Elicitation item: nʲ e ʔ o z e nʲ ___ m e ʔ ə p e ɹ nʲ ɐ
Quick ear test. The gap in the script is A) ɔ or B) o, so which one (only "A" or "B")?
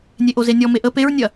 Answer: A